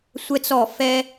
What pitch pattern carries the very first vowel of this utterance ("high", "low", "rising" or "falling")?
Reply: high